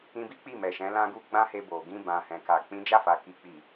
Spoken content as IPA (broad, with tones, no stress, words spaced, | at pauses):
ĩ˧bi˦ k͡pi˦˨mɛ˨ʃɛ̃˨˦ lã˦ɡu˦ ɡ͡bã˦he˧bo˨ɡĩ˧ bã˨hɛ̃˨ka˨ k͡pĩ˨˦d͡ʒa˦˨fa˨ ki˨k͡pi˨